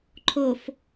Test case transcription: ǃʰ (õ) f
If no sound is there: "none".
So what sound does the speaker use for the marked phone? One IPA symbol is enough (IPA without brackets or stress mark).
o